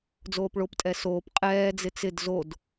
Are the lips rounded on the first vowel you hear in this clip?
yes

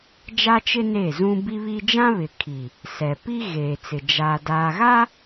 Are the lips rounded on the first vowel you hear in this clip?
no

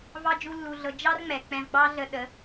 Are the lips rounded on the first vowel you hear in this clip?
no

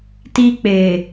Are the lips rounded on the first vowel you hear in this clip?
no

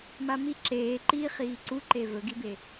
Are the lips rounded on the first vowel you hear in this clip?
no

